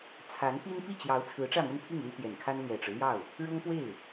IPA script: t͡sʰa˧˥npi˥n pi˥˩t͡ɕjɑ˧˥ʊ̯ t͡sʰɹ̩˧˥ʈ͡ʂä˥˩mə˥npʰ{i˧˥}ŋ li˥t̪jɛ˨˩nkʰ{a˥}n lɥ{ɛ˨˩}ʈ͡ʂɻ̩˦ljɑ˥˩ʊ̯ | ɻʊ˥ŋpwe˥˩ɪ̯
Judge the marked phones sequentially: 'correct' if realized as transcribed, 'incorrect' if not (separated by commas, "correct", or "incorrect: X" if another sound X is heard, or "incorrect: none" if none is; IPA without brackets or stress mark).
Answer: incorrect: i˥˩, correct, correct